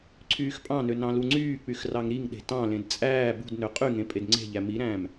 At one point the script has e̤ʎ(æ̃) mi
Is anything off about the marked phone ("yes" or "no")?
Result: yes